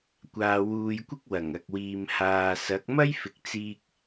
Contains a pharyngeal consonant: no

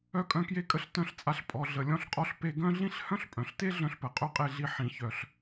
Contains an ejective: yes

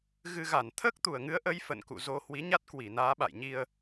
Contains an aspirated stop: yes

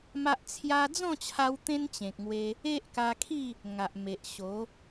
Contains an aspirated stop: yes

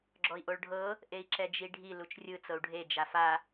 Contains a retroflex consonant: yes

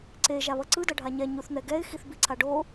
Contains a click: yes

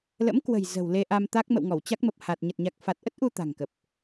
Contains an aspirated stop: no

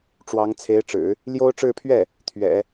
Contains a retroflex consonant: yes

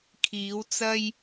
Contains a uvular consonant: no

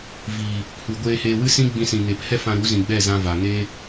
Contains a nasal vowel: yes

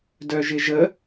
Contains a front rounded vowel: yes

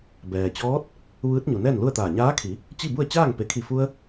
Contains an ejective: no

